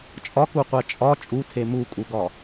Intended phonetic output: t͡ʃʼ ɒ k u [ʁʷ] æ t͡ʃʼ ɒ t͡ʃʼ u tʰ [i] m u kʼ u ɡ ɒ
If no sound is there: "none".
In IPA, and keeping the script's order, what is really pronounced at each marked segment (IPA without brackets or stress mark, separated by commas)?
qʷ, e